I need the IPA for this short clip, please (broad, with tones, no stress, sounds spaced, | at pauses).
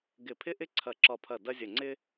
ɡ ɪ˧˩ pʰ ɪ˦ ʔ ɪ˦ ǀʰ ɐ˧˩ ǁ ɒ˧˩ pʰ ɐ˧˩ d ɐ˦ zʲ ə˧˩ ŋ͡ǀ ɪ˦